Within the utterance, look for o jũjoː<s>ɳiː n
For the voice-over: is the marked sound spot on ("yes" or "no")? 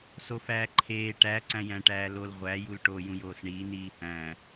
yes